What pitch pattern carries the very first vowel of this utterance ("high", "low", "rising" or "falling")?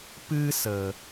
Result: high